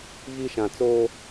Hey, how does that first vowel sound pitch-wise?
high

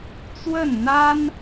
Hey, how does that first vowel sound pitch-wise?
falling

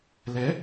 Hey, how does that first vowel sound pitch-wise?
rising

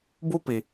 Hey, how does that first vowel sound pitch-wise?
high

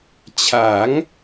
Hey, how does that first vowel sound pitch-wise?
rising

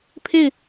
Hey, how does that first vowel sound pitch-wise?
falling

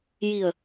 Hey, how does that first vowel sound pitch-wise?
low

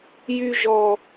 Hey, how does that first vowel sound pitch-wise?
high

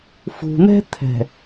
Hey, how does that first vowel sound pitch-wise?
low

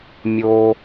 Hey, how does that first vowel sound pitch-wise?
low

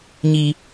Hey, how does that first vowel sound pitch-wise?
high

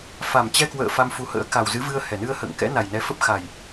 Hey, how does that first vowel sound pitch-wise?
low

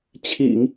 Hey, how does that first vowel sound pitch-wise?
low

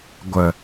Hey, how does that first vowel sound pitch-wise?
low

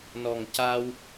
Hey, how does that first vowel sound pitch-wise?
low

